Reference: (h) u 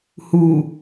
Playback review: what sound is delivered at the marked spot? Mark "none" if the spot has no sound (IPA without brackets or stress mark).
h